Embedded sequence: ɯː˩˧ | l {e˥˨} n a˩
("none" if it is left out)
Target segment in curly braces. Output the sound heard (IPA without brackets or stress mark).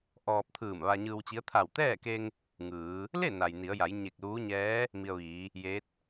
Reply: e˥˨